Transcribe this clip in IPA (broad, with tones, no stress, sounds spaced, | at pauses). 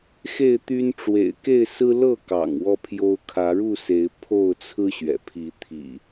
x e˥˨ ɪ̯ t̪ y˦ n ʈ͡ʂ w ḛ˨˩ ɪ̯ k e˥˨ ɪ̯ s ɹ̩˦ l ɤ˥˨ k ɑ̰˨˩ ŋ w ɔ˦ pʰ j o˦ ʊ̯ kʰ ä˨˦ ɻ u˥˨ s e˨˦ ɪ̯ pʰ o˥˨ ʊ̯ t͡sʰ ɹ̩˦ ɕ ɥ ɛ̰˨˩ pʰ i˨˦ t̪ʰ ḭ˨˩